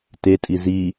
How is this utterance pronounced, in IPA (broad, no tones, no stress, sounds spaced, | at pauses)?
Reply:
t e tʼ i z i